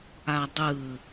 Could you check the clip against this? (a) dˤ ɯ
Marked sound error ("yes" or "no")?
no